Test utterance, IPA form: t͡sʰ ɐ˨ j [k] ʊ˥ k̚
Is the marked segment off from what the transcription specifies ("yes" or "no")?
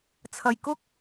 no